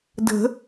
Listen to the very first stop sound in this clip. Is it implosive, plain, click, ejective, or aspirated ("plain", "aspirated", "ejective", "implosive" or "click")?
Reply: plain